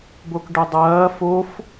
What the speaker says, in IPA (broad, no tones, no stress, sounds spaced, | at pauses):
b o k ɖ ø dˤ ɐː f o f